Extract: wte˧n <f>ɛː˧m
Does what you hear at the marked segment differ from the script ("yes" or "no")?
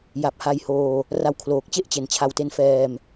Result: no